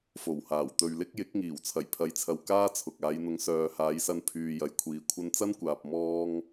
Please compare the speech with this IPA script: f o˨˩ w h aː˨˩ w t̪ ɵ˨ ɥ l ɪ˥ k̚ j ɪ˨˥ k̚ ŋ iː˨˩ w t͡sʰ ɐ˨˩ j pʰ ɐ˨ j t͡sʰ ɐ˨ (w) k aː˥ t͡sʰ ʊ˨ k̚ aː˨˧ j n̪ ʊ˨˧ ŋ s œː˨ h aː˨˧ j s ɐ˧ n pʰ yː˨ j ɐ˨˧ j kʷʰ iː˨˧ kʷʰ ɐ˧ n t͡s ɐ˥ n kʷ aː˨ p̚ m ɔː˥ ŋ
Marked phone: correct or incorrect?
correct